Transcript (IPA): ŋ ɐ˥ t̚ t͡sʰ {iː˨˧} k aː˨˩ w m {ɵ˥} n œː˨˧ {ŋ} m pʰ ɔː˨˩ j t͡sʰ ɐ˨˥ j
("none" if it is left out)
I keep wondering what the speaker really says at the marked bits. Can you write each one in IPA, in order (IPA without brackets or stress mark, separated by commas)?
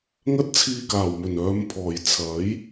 iː˧, ɵ˨˩, none